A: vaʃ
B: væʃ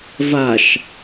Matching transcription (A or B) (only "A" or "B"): A